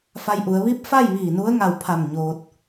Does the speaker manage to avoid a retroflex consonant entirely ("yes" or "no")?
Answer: yes